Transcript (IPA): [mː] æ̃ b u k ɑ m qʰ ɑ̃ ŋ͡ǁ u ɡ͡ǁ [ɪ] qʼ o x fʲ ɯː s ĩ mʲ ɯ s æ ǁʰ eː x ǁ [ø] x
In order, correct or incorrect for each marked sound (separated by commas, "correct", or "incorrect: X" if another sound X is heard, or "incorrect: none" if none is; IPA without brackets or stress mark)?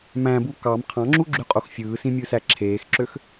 incorrect: m, incorrect: y, correct